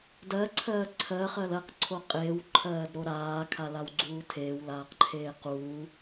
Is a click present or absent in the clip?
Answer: present